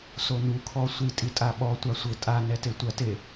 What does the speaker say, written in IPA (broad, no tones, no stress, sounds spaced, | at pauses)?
s o n u kʰ ɔ sʷ i tʼ i tʼ a ɓ ɔ tʷ a sʷ ɘ tʼ a n ɛ t e tʷ ɐ t e